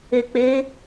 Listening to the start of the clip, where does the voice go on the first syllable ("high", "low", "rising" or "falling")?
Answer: low